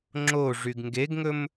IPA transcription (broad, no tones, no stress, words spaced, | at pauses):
ŋ͡ǁo ʐyɡŋɡeɡŋɵm